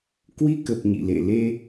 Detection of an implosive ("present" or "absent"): absent